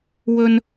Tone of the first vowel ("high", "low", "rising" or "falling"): high